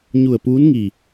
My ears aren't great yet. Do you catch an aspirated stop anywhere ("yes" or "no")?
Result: no